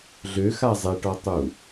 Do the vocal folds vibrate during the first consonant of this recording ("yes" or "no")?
yes